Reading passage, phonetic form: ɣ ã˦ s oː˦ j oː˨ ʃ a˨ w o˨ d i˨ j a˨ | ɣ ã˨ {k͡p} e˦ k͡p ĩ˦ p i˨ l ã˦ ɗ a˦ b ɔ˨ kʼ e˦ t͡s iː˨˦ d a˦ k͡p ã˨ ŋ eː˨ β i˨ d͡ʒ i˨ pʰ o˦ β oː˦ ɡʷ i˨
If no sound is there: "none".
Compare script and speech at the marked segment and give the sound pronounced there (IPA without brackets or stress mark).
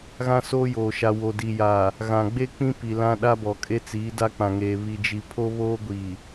ɡ͡b